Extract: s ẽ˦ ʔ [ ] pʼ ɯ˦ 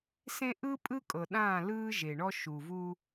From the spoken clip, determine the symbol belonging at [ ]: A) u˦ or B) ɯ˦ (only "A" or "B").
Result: B